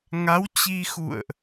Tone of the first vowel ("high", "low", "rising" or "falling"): rising